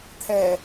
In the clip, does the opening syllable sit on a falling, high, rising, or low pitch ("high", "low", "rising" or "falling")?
low